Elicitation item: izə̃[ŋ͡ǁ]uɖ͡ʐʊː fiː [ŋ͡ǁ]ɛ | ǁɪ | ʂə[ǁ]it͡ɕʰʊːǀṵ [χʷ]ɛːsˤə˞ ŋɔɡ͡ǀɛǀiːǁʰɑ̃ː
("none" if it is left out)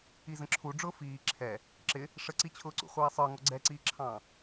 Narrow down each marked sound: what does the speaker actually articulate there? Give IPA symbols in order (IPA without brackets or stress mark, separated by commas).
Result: ǁʰ, ǁʰ, ǀ, χʷ